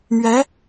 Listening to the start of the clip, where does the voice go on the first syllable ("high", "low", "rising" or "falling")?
rising